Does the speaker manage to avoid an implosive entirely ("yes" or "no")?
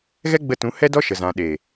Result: no